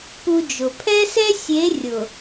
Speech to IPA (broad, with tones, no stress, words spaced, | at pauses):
pu˦d͡ʒʊ˨ pʰɛ˦sɛ˦sʲe˨˦ rʲʊ˨